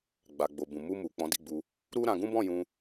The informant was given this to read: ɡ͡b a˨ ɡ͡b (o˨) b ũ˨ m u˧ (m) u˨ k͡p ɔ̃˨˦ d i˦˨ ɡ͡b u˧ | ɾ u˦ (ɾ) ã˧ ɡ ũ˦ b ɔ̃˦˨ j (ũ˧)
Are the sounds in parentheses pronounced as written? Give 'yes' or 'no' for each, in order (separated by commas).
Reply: yes, yes, yes, yes